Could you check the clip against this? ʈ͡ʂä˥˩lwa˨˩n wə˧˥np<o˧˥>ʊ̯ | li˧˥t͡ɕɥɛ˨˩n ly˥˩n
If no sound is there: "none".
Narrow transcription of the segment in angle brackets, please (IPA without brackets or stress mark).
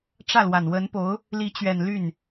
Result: o˧˥